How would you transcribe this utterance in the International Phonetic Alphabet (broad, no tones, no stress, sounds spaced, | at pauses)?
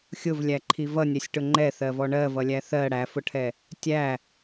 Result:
xʲ ʊ v lʲ æ ǃʰ i v ʌ nʲ ɛ sʲ ʈ ʊ ŋ͡ǃ ɛ θ ɜ v ɔ ɳ ɜ v ʌ lʲ æ θ ɜ ɽ æ f ʊ ʈʰ ɛ | tʲ æ